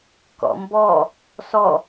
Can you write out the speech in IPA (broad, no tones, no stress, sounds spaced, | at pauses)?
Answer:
k ɔ̰ m b ɔ | s ɔ